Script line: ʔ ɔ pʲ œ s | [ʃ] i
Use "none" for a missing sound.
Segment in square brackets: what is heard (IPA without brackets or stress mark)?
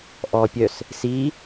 s